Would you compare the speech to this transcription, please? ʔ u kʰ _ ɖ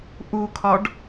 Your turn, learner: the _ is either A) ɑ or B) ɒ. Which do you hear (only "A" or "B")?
B